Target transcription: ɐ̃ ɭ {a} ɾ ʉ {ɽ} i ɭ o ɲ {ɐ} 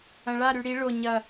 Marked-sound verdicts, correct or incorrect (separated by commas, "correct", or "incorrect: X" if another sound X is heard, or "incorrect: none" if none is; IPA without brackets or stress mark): correct, correct, correct